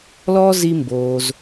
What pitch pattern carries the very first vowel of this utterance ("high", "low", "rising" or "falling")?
high